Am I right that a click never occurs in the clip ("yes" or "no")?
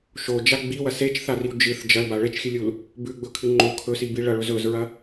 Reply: no